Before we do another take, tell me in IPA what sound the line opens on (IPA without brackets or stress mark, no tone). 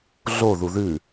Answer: ɮ